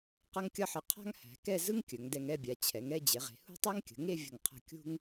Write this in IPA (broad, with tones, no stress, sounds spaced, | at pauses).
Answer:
q ʌ˥ ŋ kʲ ʌ˥ ħ ə˧ qʰ a̤˥ ŋ h æ̤˩˧ k ɛ˥˧ z ɯ˥ ŋ kʲ ɵ˩˧ ŋ d ɛ˧ ŋ ɛ˥˧ bʲ a˩˧ t͡ɕʰ ɛ˩˧ ŋ ɛ˥˧ d͡ʑ e˩˧ ʁ e̤˩˧ h ṳ˥˧ tˤ æ˥ ŋ kʲ ə̤˩˧ ŋ e˥˧ vʲ ə̤˧˩ ŋ qʰ ə̤˧˩ kʲ ṳ˥ ŋ